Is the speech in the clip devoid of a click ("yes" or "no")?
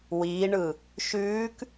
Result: yes